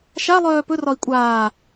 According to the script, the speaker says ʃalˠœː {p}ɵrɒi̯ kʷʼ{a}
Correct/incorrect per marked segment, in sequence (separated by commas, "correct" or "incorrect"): correct, incorrect